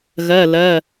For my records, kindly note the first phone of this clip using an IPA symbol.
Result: ɣ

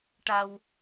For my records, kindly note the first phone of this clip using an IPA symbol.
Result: ʈ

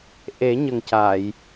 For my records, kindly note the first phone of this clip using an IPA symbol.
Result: ʔ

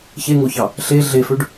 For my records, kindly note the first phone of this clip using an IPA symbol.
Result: ç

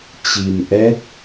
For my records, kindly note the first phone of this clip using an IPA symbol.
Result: t͡ɕ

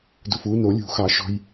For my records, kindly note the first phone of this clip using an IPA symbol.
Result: d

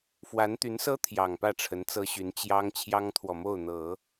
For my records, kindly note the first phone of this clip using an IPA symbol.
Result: f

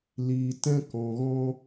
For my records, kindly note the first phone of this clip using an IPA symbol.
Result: l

